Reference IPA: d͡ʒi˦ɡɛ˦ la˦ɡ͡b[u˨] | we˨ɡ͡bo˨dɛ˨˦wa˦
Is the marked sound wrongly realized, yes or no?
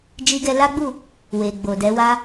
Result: yes